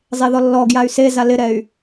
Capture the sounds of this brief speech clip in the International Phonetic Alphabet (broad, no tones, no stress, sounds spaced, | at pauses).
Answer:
zˤ e ð ɔ lː ɔ ɡ j a y̯ s e z a l ɪ ɾ ɛ y̯